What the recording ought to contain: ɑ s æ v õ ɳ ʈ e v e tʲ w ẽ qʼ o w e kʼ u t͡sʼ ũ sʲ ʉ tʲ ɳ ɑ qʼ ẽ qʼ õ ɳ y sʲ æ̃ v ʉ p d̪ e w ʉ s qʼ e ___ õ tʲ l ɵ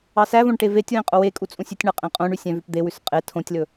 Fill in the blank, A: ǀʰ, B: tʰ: B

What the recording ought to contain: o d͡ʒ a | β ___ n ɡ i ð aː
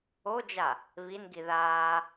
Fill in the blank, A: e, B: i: B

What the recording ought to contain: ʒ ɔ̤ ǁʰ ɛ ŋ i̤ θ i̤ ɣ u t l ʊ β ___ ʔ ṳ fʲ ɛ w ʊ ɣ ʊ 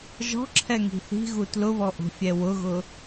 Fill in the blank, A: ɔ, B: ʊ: A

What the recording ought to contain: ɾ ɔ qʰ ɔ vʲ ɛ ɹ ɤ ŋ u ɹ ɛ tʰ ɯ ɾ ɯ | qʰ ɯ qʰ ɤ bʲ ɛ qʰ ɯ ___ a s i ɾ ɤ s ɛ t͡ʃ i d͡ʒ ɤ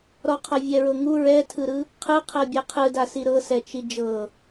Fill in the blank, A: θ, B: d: B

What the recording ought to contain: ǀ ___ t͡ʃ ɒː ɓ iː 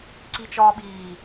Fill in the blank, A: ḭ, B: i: B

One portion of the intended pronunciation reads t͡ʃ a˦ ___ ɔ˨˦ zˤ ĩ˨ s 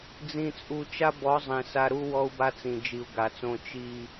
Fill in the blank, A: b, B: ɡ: A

